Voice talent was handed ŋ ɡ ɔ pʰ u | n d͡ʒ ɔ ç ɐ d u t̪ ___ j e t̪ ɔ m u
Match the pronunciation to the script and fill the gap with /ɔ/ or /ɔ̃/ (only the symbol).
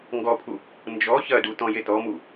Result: ɔ̃